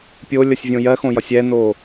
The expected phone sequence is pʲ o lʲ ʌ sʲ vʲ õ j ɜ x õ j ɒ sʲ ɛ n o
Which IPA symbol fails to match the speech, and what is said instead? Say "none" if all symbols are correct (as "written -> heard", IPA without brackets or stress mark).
none